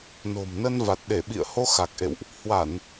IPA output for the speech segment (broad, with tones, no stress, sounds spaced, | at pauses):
n o̤˨˩ m n ə˧ n v a˨˩ t̚ ɗ e˧˩ ɓ ḭ˧˨ ə̯ h o˧ x a˨˩ k̚ ʔ ḛ˧˨ w ʔ | h w a˧˩˨ n